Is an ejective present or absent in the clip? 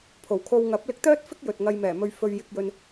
absent